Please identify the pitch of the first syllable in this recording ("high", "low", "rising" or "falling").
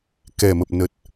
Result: low